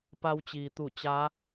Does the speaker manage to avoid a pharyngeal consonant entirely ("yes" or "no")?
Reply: yes